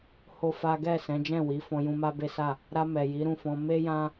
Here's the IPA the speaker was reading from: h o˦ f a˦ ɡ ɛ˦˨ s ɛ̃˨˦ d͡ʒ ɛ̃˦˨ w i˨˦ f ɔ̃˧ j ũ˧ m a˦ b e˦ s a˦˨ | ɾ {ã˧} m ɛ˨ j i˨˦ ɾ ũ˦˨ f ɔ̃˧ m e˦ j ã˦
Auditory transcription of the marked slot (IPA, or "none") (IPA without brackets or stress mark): a˧